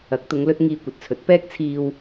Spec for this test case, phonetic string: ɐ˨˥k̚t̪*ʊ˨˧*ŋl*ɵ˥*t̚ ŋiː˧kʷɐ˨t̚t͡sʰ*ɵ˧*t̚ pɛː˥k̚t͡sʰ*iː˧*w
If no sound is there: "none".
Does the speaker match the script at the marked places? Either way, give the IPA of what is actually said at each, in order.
ʊ˨˧, ɵ˧, ɵ˨˥, iː˧

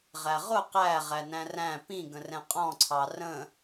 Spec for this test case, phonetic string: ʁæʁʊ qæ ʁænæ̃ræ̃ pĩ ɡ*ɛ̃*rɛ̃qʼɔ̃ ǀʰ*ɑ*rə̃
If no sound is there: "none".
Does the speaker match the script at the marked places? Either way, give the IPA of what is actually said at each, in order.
ə̃, ɑ

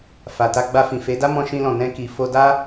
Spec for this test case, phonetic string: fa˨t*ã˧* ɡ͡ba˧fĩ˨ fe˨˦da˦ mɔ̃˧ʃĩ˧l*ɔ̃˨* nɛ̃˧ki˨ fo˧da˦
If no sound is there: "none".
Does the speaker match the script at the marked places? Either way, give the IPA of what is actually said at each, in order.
a˧, ɔ̃˨

